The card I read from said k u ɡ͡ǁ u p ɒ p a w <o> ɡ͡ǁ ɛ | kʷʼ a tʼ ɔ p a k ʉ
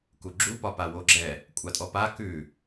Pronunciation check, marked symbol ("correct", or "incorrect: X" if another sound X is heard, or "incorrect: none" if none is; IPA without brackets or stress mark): correct